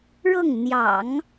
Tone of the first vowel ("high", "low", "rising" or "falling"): falling